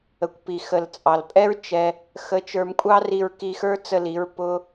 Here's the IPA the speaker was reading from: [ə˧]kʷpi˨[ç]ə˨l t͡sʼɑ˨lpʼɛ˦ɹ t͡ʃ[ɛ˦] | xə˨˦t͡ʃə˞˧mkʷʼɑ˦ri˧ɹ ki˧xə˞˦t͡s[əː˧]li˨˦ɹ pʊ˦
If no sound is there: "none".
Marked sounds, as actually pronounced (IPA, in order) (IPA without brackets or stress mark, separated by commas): ə˨, x, ɛ˦, ə˧